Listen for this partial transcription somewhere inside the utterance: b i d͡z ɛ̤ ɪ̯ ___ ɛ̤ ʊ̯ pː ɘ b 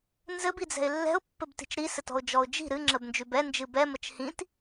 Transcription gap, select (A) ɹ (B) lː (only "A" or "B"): B